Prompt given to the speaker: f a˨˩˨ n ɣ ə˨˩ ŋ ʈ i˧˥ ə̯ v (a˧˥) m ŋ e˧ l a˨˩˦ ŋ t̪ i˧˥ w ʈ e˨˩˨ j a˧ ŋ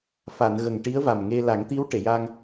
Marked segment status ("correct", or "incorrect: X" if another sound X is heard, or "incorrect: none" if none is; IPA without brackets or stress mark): incorrect: a˨˩